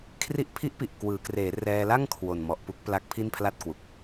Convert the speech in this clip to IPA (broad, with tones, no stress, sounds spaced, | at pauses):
kʰ r i˦˥ ʔ pʰ i˦˥ ʔ p i˨˩ ʔ k w ɯː˩˦ k r eː˩˦ r ɛː˧ l a˥˩ ŋ kʰ w o˨˩ n m ɔ˨˩ ʔ p u˦˥ k̚ p l a˦˥ k̚ pʰ i˥˩ n pʰ l a˥˩ t̚ k w u˨˩ k̚